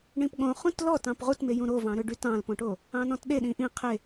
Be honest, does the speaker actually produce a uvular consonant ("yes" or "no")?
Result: yes